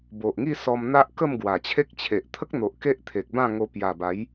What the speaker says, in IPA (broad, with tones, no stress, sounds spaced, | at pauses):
b o˨ ʔ ŋ i˥˧ s ɔ˧ m n̪ a˦ ʔ k ə˥˧ m ɡ w a˨˩ t͡ɕʰ e˦ k̚ t͡ɕʰ e˨ ʔ t̪ʰ ə˦ k̚ n̪ o˨ ʔ k e˦ ʔ t̪ʰ e˨ k̚ b ã˥˧ ŋ o˧ p j a˨˩ b a˨˦ j